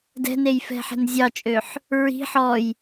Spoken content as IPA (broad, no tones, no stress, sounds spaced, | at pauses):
d ɛ̤ n e j f ɛ̤ ħ ɛ̤ n zʲ ɑ t͡ʃʼ ø ħ | ɹ i̤ ħ ɔ j